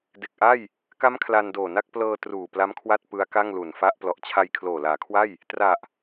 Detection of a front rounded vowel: absent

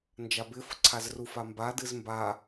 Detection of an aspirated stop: present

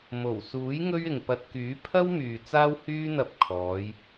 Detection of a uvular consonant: absent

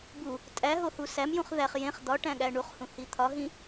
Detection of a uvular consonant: present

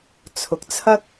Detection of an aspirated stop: present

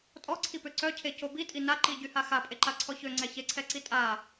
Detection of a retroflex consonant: absent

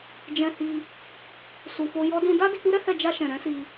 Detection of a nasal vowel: present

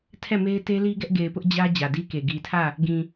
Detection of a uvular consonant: absent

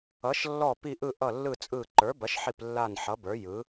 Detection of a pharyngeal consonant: present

